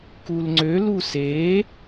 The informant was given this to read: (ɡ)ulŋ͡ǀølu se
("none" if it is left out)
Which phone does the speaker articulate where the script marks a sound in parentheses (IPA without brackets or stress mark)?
k